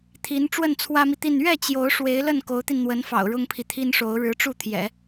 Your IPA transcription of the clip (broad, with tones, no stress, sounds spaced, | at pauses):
t̪ʰ i˧˥ n ʈ͡ʂ w ə˥˩ n t͡sʰ w ä˥ m i˨ t̪ i˥˧ n ɥ ɛ˥˩ t͡ɕ j o˧˥ ʊ̯ ʂ w e˧˥ ɪ̯ l ə˥˩ n k o˧˥ ʊ̯ t̪ i˧ n n̪ w ə˧˥ n f ɑ̰˨˩ ʊ̯ ɻ ʊ˥ ŋ pʰ i˨ t̪ʰ i˥ n ʂ o˧˥ ʊ̯ ɻ ɻ̩˧˥ ʈ͡ʂ u˥˩ t̪ʰ j ɛ̰˨˩˦